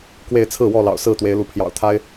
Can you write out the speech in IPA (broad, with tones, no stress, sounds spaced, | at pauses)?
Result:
k w e˥˨ ɪ̯ t͡sʰ ɹ̩˥˨ w ɔ˥˨ l ɑ̰˨˩ ʊ̯ s ɹ̩˥˨ t̪ w e˨˦ ɪ̯ l u˨˦ pʰ j ɑ̰˨˩ ʊ̯ t̪ʰ a˦ ɪ̯